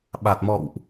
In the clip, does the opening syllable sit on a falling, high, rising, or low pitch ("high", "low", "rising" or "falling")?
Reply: low